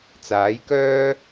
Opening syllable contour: rising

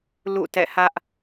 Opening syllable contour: falling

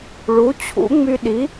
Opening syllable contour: rising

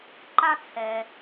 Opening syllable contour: high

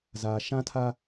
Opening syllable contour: low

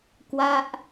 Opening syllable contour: falling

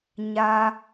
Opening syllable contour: high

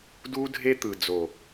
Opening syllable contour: high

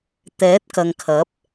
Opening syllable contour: rising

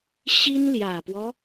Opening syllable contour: high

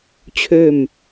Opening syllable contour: falling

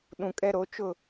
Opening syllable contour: low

